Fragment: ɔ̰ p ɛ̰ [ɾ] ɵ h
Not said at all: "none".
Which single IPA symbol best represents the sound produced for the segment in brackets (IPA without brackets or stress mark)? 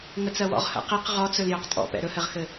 ɾ